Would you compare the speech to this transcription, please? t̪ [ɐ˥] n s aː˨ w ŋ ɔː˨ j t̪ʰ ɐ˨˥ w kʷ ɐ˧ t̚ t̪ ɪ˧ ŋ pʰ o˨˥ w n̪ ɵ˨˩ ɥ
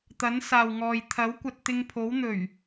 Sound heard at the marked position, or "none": ɐ˨˥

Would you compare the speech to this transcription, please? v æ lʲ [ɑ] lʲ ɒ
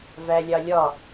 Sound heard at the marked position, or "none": ɑ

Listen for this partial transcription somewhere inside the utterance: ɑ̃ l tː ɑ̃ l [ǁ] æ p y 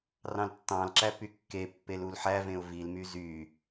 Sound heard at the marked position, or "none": ǁ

